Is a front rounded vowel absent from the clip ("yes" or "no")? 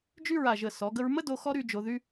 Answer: no